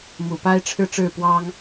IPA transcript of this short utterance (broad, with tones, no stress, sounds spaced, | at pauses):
m u˨˩ p a˥ ɪ̯ ʈ͡ʂʰ ɻ̩˥˧ ʈ͡ʂ ɻ̩˥˩ p w ɑ˥ ŋ